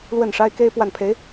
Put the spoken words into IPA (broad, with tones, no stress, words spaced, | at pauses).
lwə˥˩nʂa˥ɪ̯ke˥ɪ̯ pwa˥˩npʰe˧˥ɪ̯